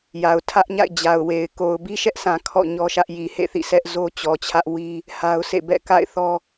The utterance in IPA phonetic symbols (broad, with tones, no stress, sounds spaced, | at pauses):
j a˨ ʊ̯ tʰ ä˦ ʔ ɲ a̰˦˨ ɪ̯ d͡ʑ a˨ ʊ̯ w e˨ ɪ̯ k o˨ ʊ̯ b i˦ ʃ ɛ˦ ʔ sʰ ã˨ kʰ ɔ̰˦˨ ɲ ɔ˦ ʃ ä˦ ʔ j i˨ h ḛ˦˨ θ ḭ˦˨ sʰ ɛ˦ ʔ z o˦ t͡ɕ ɔ˨ t͡ɕʰ ä˦ ʔ w i˦ | h a˦ ʊ̯ s ḛ˦˨ b ɛ̰˦˨ k a̰˦˨ ɪ̯ θ ɔ˦